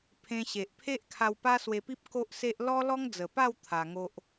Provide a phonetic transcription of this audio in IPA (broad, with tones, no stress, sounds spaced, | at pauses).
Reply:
pʰ ẽ˧ ɕ e˨ ʔ pʰ e˦ ʔ kʰ a˧ w p a˦ s w e˧ p i˦ p̚ k o˦ ʔ s e˦ ʔ l ɔ˦ l ɔ˦ ŋ d͡z ə˨˩ p a˥˧ w t̪ʰ a˧ ŋ o˦ ʔ